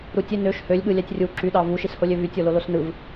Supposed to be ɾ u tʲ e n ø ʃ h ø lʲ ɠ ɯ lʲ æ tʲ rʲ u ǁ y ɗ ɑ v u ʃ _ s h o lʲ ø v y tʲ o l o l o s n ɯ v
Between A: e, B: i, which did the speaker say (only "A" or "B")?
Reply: B